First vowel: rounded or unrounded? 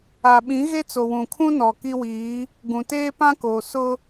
unrounded